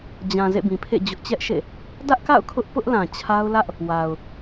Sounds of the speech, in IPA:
d͡ʑ ã˨ z ḛ˦˨ b ĩ˨ pʰ ḛ˦˨ d͡ʑ ʊ˦ ʔ t͡ɕ ɛ˦ ʔ ʃ ḛ˦˨ | d ä˦ ʔ k a̰˦˨ ʊ̯ kʰ ʊ˦ ʔ p ʊ˦ ʔ l ã˨ t͡ɕʰ a˦ ʊ̯ l ä˦ ʔ | w a˨ ʊ̯

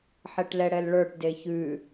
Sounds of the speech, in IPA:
ħ ɛ ʈ l ɛ ɽ ɛ l ɭ ə˞ ʈ d e ç ʉ

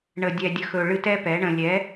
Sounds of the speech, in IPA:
ɳ ə˨ dʲ ɛ˨ dʲ ə˨ x ɵ˨ ɭ ɨ˧ t ɛ˦ p ɛ˨˦ ɳ ə̃˧ lʲ ɛ˨˦

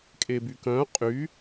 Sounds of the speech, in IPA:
kʼ e b y k œ̃ qʼ y

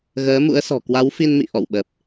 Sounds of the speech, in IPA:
ɣ əː˨˦ m ṵ˧˥ ə̯ s ɔ̤˨˩ k w a˨˦ w f i˧ n m ḭ˧˨ ʔ ɔ̰˧˨ w ɓ ə˨˩ p̚

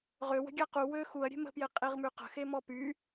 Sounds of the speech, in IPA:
ʁ ø w ə̤ ɡʲ a q u w ø x u ɐ̯ ɾʲ e̤ m ə̤ p j e qʼ i ʁ m y q ə̤ x e m ɔ p y

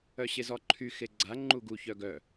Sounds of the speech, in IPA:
œ ɕ e z ɔ ǃʰ y x e ɡ͡ǀ a ŋ͡ǃ u ɡ u ç œ ɡ œ

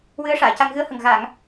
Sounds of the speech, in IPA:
w ɨ˧˥ ə̯ ʂ aː˨˩˨ c a˧ ŋ ɣ ɨ˧˥ ə̯ h ə˨˩ ŋ ɣ a˨˩˨ ŋ

